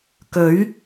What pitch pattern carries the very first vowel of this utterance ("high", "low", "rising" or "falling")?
rising